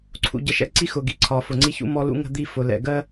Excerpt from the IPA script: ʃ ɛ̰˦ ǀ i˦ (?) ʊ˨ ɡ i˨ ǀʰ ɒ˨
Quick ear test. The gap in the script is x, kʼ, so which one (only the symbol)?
x